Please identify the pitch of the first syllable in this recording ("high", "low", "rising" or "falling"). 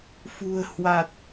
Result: low